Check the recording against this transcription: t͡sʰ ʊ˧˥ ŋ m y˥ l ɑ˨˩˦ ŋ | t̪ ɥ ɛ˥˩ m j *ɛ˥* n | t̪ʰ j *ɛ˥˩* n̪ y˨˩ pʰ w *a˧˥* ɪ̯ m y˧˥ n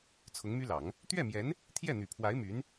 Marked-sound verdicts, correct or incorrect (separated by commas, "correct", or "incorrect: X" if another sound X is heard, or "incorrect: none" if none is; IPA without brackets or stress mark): incorrect: ɛ˧˥, correct, correct